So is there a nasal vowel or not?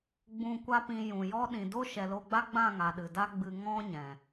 yes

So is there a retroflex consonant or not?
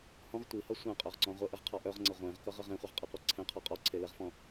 no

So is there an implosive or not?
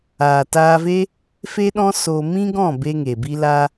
yes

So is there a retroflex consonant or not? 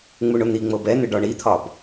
yes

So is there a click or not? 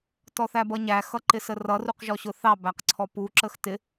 yes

